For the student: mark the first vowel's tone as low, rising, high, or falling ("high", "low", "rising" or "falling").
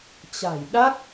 low